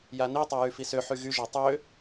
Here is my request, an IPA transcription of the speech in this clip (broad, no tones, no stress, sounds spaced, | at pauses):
j a n i tˤ a j y f i s ø ħ y ɣ y ʒ a tˤ ø